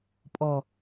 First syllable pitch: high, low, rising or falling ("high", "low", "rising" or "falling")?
low